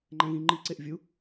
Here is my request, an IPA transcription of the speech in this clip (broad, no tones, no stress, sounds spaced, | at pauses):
ŋ͡ǃ æ̃ ɣ ĩ ŋ͡ǃ i ǀ e ʔ vʲ u